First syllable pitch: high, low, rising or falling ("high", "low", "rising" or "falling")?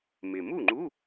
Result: low